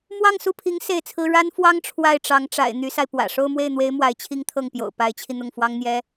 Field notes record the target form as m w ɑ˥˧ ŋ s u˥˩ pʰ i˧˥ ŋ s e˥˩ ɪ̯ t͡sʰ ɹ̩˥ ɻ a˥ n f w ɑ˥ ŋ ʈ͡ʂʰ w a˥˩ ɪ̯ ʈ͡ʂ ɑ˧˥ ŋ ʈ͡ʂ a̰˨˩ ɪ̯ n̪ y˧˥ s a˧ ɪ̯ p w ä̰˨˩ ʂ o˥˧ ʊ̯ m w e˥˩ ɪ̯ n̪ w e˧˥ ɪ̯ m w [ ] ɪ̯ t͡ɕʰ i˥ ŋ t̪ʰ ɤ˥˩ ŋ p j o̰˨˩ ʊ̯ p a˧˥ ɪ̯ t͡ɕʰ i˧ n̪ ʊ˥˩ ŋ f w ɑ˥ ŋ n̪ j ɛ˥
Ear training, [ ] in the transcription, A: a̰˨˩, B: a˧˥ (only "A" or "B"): B